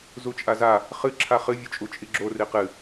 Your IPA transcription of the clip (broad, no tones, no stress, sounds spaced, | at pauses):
z u t͡ʃʼ a z a | χ ɨ ǁʰ a χ ɨ vʲ u t͡ʃʼ u t͡ʃʼ i ɡ͡ǁ o r i q ɨ